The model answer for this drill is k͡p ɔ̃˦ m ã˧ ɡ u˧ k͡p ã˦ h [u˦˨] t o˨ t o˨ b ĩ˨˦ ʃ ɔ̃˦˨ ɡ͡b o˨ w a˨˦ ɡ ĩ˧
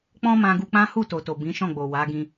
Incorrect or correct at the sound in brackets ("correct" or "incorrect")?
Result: correct